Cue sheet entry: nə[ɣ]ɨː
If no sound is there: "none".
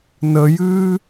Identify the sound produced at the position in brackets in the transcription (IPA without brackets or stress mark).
j